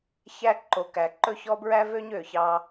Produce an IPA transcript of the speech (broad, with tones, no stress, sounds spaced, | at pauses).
ç æ˦ ǃ o˨ k æ˨ ǃ ɵ˦ ç ɔ˦ b ɹ æ˦ v ø˦ ɲ ø˨ ç ɑ˦